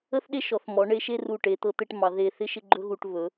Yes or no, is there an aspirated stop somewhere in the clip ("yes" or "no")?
no